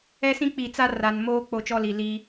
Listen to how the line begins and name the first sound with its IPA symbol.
ɛ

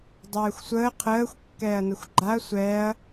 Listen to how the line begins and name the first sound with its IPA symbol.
dˤ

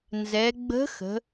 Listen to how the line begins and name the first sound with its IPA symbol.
n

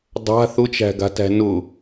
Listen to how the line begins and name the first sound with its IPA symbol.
dˤ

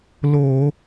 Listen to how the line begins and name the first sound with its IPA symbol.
l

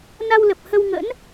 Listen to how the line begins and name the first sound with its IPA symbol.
n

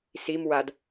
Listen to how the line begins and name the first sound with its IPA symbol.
s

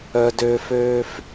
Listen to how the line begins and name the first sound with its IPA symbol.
œ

